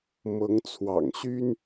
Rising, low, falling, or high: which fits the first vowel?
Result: rising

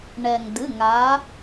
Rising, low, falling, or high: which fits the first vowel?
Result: low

